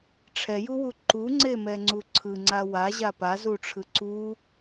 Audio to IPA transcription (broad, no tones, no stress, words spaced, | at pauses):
ʈ͡ʂʰɛjuwu ǃuŋ͡ǀemɛŋ͡ǀu ǀʰɯŋ͡ǀa waʑa pazuʈ͡ʂʰɯ ǀu